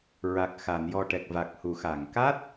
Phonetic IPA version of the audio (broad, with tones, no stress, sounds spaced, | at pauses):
ɹ a˨˩ k̚ x a˨˩˨ n j ɔ˨˩ ʈ ɛ˨˩ k̚ v a˨˩ k̚ h u˨˩˨ x a˨˩˨ ŋ k a˦˥ t̚